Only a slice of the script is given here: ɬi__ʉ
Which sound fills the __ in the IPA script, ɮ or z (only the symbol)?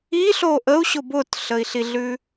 ɮ